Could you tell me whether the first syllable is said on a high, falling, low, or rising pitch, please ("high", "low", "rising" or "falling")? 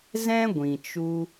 high